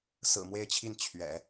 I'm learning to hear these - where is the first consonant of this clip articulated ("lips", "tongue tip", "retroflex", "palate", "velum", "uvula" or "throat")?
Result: tongue tip